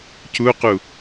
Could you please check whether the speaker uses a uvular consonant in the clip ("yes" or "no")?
yes